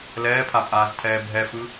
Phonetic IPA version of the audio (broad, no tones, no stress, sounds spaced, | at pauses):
l ɛː pʰ a pʼ aː z tʰ ɛː bʱ ɛ f ɯ